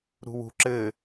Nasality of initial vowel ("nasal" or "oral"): oral